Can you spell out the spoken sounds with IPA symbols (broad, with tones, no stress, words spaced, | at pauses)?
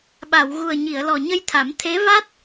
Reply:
ɓa˨˩˨wɣu˨˩ə̯ ɲi˨˩˨ə̯lɔ˨˩ ɲə˧jt̪ʰa˨˩˦m t̪ʰe˧˥va˦˥t̚